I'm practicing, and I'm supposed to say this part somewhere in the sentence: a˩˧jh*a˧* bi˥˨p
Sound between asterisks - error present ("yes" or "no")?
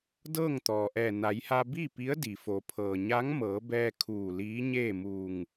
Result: no